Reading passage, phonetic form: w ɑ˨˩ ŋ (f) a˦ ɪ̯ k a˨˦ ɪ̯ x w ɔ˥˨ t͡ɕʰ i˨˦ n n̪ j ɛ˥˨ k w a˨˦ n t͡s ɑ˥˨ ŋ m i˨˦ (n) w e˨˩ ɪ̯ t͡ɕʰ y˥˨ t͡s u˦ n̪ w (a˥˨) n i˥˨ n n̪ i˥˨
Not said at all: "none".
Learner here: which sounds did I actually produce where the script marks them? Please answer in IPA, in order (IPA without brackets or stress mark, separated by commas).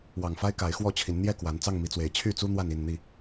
f, t͡s, a˥˨